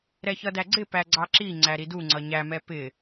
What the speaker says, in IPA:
ɾɛçʌdæɡ͡ǀɪ pæɡ͡ǀɑǁi ŋ͡ǀæɾidu ŋ͡ǀʌɲæmɛ pɪ

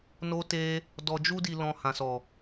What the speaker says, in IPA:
no˧te˧ | dɔ˨d͡ʒu˧di˨lɔ̃˨ hã˨sɔ˨

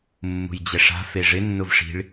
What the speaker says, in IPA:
mːṳjd͡ʑɛʂa̤ feʐɪ nːʊvʂi̤ɭ

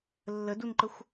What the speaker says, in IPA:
lːədunǃəxʷ

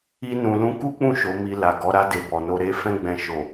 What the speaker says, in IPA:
i˦nũ˧lũ˦ ku˦k͡pũ˦˨ ʃo˨˦mi˧la˨ɡɔ˨˦ ɾa˧de˨ bɔ˨no˧ ɾe˦ fɛ̃˦ɡ͡bɛ̃˧ ʃo˨

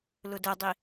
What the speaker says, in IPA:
lʊdɛdˤi

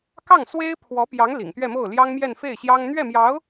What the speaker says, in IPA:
kɑ˥˩ŋswe˥ɪ̯pʰwɔ˧˥pjɑ˧˥ŋ lḭ˨˩ŋt̪ɥɛ˥˧mo˥˩ʊ̯ ljɑ˥ŋmjɛ˥˧nfe˥˩ɪ̯ɕjɑ˥ŋ n̪ɥɛ˥˩mjɑ˧˥ʊ̯

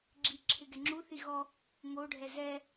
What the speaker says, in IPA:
ɡ͡ǁiǁʰɪ ɡɛŋ͡ǁuθi ɣɔ | ŋoɖʱɛ zɛ

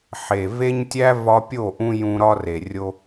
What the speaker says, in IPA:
ħe˨ ve˦ɲtʲæ˦ vɒ˧pʲo˦˨ʔũ˧ jũ˧ɾɒ˦re˨ rʲo˦

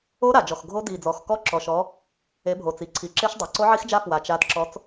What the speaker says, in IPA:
o˦˥ɾa˨˩d͡ʒɔ˨˩x ɡʱo˦˥ di˨˩d͡zɔ˨˩x kɔ˦˥ǁɔ˨˩ʃɔ˨˦ | e˨˦bʱo˨˩t͡si˨˩ ǀʰi˨˩ǁe˦˥ʃ dˤa˨˩ǀo˦˥ʕi˦˥xd͡ʒa˦˥ fwa˨˩t͡ʃ a˨˦dǁɔ˨˦t͡s

